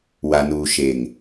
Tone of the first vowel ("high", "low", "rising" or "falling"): low